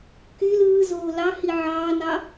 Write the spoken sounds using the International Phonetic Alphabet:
k y l ɯː z oː l ɑ h i ʕ ɑː n ɑ

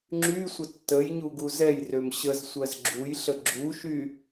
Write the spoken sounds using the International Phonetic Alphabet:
ŋ͡ǁ y sʷ ə tː ə j ɲ u ɡ u z ɛ j r ø m ɕ ə z sʷ ɜ z ɡ͡ǁ u j ɬ ə ɡ͡ǁ u ʃ y

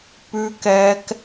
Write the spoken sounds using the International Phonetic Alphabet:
p ʉ˦ k ɛ˦ k

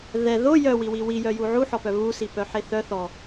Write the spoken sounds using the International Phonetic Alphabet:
ð ɛ ð o j œ w i w i w i j œ j u ʕ u ħ ɔ p œ β u s i p œ ħ e θ œ θ ɔ

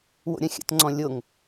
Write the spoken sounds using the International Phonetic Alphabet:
w o̰ ɾʲ ɐ̃ xʲ ə̰ t ŋ͡ǀ ɔ̃ lʲ o ŋ

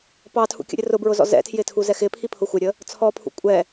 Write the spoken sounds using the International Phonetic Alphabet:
p ɑ tʰ ṵ kʲ ə̰ ɾʲ ə r ʊ b ɹ ʊ z ɔ̰ z ɛ̰ tʰ j ɪ tʰ u z ɛ x ɪ pʰ i pʰ ʊ xʷ ɪ ɾʲ ə | t͡sʰ ɔ pʰ ṵ kʷʼ ɛ

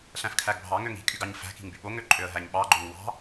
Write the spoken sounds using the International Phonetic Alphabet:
ɬ æ̃ f kʰ æ ɡ bʱ ɑ ŋ ø ŋ i̤ kʼ y ɡ ɑ ɲ f æ̤ k i̤ ŋ b y ɓ o ŋ ø ǃʼ ø ə̯ ɦ æ ɲ ɓ ɑ ɡ͡ǃ o ŋ w ɑ̤

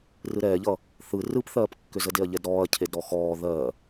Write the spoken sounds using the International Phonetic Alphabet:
r ɯ ɾ ɛː ʎ ʌ | θ ɯ r ɯ p θ ɜː p kː ʏ z ə d e ɐ̯ ʎ ɛ d ɾ ɔː ɐ̯ cʰ e d ɾ ɔ x ɔː ð ɜ

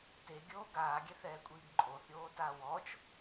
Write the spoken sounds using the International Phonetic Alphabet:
t e ɡʲ oː ɡ aː ɡʲ ɛ θ ɛː kʷʼ iː ɡ ǃʼ o θ ɾʲ oː t a w ɔ t͡ʃ

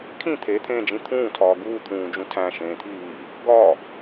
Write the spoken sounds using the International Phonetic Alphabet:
kʰ ĩ t̪ʰ e t̪ʰ ẽː d͡ʒ ĩ t̪ʰ ũː tʰ ɒː ɡ uː t̪ʰ ũː d͡ʒ ũ tʰ æ̃ ʃ ẽː t̪ʰ iː | ɡ ɒ

